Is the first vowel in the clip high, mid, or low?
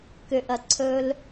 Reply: high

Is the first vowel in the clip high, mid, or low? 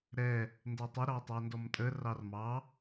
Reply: mid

